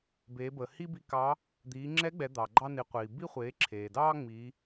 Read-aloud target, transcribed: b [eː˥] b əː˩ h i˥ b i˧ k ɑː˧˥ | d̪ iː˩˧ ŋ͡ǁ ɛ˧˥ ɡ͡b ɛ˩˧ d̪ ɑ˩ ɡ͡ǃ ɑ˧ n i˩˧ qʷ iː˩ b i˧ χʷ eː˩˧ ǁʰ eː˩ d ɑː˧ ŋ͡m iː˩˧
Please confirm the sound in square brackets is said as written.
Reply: no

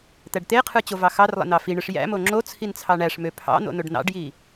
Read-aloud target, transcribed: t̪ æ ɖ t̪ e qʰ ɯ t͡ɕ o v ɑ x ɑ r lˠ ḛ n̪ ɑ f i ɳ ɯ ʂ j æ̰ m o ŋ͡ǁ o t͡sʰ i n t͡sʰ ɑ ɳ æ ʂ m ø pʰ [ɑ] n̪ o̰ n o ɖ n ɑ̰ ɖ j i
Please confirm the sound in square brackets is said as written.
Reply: no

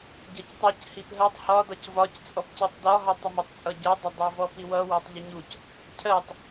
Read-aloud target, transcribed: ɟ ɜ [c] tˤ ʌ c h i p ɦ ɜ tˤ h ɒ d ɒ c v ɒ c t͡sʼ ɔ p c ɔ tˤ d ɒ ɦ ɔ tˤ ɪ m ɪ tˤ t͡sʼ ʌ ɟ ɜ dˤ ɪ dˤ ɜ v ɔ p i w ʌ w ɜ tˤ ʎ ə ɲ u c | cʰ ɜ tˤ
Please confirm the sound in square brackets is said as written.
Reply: yes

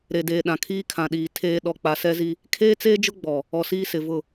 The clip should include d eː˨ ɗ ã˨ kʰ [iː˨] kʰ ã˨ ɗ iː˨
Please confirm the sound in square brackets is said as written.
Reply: no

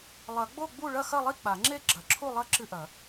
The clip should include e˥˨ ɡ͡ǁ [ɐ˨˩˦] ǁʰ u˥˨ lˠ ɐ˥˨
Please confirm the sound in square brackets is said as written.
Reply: yes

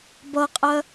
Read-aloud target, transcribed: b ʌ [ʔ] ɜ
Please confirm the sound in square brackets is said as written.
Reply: no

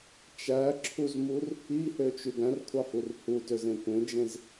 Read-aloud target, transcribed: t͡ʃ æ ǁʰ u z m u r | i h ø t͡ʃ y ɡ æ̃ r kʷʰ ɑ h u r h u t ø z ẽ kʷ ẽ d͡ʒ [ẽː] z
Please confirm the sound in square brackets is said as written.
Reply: no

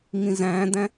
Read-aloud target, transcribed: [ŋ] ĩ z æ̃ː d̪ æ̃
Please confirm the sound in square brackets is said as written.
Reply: yes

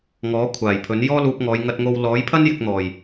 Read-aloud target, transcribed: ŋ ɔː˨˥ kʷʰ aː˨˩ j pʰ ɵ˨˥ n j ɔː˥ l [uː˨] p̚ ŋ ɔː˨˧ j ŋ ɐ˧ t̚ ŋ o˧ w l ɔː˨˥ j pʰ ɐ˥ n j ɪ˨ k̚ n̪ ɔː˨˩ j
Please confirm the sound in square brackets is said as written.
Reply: no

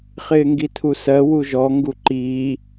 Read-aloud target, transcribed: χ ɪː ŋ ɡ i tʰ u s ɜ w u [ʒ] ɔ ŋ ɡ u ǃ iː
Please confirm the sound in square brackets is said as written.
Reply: yes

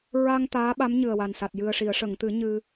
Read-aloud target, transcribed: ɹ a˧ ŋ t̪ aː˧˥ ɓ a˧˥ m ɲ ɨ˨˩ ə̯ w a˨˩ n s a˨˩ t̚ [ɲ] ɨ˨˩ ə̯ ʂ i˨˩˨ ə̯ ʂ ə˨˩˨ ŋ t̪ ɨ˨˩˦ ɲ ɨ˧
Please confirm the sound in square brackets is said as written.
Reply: no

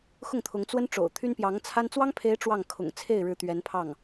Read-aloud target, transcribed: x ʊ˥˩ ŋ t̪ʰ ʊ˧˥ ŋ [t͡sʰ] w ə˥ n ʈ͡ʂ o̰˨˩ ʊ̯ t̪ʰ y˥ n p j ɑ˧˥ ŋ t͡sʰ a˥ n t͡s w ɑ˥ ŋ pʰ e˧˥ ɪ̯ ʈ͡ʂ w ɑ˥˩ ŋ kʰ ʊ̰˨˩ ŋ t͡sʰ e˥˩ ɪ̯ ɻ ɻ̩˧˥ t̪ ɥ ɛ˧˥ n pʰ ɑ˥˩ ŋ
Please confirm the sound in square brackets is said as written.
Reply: no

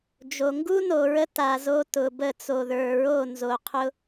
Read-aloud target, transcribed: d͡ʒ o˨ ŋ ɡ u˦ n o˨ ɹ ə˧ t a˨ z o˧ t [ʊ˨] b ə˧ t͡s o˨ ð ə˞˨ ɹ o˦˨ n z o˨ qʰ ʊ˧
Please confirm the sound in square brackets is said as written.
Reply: yes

